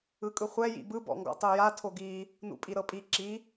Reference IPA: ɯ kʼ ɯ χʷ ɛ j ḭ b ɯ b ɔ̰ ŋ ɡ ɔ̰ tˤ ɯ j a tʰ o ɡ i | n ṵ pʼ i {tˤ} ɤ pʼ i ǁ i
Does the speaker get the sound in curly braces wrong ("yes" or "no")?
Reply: yes